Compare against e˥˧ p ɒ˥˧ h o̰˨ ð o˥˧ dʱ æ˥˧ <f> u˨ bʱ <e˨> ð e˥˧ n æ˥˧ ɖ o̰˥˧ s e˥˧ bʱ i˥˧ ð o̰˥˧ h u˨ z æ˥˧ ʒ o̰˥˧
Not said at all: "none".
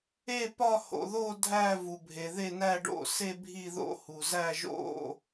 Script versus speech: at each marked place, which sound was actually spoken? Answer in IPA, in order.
v, e˨

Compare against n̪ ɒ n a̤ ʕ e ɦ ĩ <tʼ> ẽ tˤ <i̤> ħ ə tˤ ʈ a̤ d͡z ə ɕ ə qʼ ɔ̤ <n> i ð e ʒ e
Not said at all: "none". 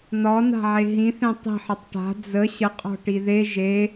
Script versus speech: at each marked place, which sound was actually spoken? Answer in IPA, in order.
θ, i̤, ʈ

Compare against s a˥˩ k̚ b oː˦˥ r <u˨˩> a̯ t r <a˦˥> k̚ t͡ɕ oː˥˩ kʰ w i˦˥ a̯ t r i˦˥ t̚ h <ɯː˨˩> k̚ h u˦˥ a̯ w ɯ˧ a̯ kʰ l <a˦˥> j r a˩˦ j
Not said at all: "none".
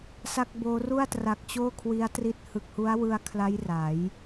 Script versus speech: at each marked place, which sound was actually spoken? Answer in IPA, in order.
u˥˩, a˨˩, ɯ˨˩, a˦˥

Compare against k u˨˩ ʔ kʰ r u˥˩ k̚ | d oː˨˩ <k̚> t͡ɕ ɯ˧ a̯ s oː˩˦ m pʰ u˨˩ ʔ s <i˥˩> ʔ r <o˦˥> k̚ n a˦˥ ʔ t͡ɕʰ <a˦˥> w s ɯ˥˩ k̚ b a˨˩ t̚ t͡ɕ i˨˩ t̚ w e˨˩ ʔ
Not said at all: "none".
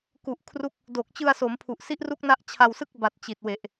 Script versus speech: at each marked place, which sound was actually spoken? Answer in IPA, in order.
k̚, i˦˥, u˦˥, a˧

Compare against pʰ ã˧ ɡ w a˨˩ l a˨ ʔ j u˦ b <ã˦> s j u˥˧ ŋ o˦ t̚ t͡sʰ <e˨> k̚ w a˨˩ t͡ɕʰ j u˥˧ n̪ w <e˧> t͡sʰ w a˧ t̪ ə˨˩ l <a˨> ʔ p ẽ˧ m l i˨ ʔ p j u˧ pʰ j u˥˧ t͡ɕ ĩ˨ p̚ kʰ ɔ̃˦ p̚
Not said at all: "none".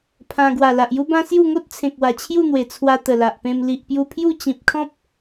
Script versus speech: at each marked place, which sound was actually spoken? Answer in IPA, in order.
ã˦, ẽ˨, e˨˩, a˨

